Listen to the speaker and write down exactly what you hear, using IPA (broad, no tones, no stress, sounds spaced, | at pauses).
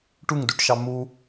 ʈ u ŋ d u ʈ ʃ ɑ m u